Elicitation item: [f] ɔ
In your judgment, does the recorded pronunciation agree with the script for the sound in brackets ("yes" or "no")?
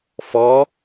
yes